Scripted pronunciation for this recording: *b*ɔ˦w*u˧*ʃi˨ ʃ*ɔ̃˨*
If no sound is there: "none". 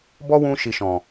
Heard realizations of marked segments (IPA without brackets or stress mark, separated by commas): b, ũ˧, ɔ̃˨